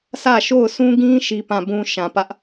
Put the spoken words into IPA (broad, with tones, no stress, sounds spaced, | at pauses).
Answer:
sʰ ä˦˨ ʃ o˦˨ ʊ̯ sʰ ũ˦ ɡ ĩ˦ ʃ i˦ p ã˦˨ b ũ˦ ʃ ã˨ p ä˦ ʔ